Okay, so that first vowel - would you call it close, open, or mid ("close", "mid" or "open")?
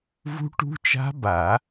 close